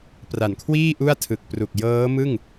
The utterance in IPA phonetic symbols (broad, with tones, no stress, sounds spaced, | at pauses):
p r a˨˩ n kʰ w iː˥˩ ʔ u˥˩ a̯ tʰ ɯ˨˩ k̚ p r u˨˩ k̚ j ɤː˦˥ m ɯ˥˩ ŋ